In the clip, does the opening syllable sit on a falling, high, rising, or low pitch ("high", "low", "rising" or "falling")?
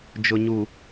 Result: low